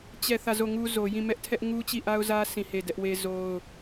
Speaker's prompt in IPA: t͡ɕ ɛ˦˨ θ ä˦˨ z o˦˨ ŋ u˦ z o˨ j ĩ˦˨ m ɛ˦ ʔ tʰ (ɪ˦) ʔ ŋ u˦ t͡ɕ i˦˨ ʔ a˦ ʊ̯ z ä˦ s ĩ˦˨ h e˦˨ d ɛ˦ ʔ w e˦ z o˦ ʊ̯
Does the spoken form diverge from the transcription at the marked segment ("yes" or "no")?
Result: yes